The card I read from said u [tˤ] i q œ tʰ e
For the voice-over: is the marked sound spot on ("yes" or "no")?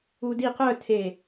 no